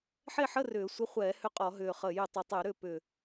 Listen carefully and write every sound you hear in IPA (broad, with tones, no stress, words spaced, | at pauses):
ħe˦˨ħə˧˥˧ rʏː˧˩˧sʷə˧˥˧ χʷɛː˧˩˧ hʏ˦˨qʼɔ˧˩˧ɦʏː˨˩ χəː˨˩jʏ˧˩˧tˤəː˨˩ tˤʏː˧˩˧ɾʏː˦˨ pʏː˨˩